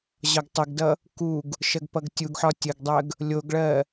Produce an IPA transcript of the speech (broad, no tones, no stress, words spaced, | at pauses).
ʑɒɡtˤəɡdʌ | kuɡ | ʃɜɡpʌɡtʲuɡħɒ tʲəɡdˤɜɡ | lʲoɡɭɜ